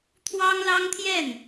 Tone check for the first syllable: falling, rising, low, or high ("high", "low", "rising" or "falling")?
high